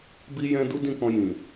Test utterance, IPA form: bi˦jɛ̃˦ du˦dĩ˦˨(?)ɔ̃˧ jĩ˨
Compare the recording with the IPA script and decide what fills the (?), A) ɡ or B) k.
B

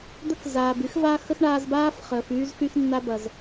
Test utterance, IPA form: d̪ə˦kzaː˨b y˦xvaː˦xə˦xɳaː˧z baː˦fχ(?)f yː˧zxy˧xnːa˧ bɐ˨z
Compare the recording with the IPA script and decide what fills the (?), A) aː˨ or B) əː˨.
B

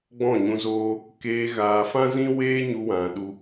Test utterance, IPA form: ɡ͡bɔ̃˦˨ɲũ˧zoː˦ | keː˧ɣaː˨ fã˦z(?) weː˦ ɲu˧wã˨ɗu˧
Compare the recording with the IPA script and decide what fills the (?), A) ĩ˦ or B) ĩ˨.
A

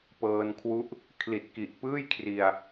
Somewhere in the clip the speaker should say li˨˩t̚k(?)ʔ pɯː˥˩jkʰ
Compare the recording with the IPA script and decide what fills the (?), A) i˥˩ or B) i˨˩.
B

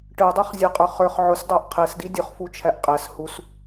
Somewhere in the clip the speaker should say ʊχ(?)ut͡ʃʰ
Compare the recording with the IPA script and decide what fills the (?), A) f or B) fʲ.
A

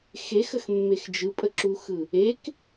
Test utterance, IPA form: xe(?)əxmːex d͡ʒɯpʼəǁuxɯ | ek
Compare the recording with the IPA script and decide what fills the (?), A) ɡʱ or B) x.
B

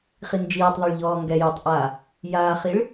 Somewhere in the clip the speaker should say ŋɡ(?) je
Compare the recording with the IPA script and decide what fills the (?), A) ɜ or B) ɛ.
B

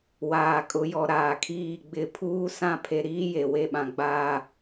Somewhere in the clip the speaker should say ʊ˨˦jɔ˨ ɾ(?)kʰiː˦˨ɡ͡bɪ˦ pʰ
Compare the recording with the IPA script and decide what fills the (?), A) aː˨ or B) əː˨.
A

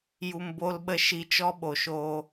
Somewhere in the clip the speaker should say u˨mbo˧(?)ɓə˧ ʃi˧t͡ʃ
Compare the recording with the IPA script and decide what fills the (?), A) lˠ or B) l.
B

